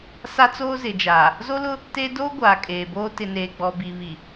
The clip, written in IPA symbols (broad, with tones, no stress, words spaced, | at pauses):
sa˦t͡soː˦zɪ˨ d͡ʒaː˨ | zo˦lʊ˦ | te˦ doː˦ ɡʷaː˨kʼeː˨boː˦ tɪ˨neː˨ɡ͡bɔ˨ bi˨βi˨